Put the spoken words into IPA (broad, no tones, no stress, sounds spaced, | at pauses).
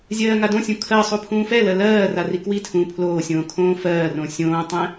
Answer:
zʲ ɜː ŋ a d õ sʲ ũ kʰ ɜ sˤ u pʰ ũː f ɛ l ɜ l ɜː r a r i k w i tʰ ũː pʰ l oː sʲ õː kʰ õː f ɜː r õ sʲ õː tˤ ɛ̃